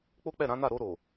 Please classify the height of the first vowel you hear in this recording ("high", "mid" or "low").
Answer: mid